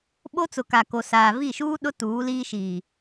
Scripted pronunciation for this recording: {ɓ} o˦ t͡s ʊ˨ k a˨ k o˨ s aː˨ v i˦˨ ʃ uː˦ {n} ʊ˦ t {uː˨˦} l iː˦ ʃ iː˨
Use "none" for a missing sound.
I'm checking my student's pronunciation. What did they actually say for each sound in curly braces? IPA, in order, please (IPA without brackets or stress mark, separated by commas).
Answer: ɓ, ɗ, uː˨˦